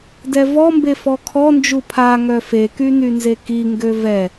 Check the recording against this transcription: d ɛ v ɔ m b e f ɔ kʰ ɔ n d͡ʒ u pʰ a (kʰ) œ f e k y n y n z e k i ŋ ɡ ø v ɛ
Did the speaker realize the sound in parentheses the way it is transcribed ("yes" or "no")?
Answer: no